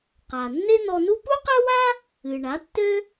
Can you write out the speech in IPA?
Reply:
qa˩ nːe˥n̪ɔ˧nu˥ pu˥qɜ˥wa˥ | ɨ˩ ɳa˩˥tːø˥

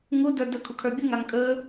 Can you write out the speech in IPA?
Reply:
ŋu də˞dɵ kʰukʰə˞bʲuŋ aŋkʼɵ

